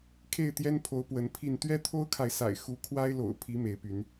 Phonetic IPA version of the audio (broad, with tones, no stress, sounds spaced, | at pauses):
kʰ e˥˨ ɪ̯ t̪ j ɛ˦ n pʰ o˨˦ ʊ̯ p w ə˨˦ n pʰ i˥˨ n t̪ ɥ ɛ˦ t̪ʰ o˦ ʊ̯ kʰ a˨ ɪ̯ s a̰˨˩ ɪ̯ x u˨˦ kʰ w a˦ ɪ̯ l o̰˨˩ ʊ̯ pʰ i˨˦ m e˨˦ ɪ̯ p y˨˦ n